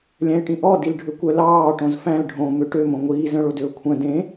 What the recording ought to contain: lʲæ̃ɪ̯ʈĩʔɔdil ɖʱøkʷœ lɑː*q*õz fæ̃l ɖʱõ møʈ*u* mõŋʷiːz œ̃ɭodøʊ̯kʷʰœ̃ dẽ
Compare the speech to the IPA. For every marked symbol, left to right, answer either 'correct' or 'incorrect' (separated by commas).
incorrect, incorrect